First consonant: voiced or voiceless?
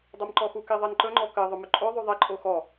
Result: voiced